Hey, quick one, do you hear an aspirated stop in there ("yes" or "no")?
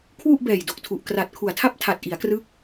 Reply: yes